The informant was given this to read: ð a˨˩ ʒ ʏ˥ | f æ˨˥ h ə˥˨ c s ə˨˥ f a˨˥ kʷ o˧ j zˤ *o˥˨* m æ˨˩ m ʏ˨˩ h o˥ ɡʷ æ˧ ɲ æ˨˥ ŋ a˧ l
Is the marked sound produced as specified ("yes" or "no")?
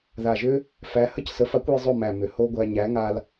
yes